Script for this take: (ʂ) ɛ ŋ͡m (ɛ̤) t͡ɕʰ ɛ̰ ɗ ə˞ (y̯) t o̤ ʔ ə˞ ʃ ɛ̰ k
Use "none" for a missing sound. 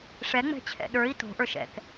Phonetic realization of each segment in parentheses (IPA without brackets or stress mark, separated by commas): ʂ, ɛ̤, i̯